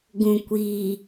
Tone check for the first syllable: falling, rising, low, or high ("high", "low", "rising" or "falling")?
low